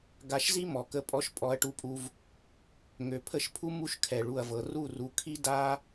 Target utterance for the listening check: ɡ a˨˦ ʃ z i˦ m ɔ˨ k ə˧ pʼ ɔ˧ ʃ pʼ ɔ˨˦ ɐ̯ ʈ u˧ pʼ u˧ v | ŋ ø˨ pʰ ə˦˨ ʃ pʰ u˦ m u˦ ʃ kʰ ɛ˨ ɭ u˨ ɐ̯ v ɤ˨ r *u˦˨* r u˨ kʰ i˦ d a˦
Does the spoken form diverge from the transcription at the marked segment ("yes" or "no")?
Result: no